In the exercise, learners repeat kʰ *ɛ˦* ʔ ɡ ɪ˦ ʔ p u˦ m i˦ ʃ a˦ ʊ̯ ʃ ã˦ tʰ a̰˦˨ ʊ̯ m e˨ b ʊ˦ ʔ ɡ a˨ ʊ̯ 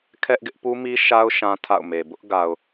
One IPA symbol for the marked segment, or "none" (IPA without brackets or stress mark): ɛ˦